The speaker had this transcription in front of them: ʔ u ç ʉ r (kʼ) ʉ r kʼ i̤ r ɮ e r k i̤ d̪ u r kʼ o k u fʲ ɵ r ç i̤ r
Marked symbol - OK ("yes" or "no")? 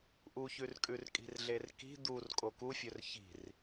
yes